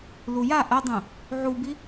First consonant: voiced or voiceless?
voiced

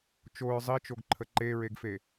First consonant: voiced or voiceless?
voiceless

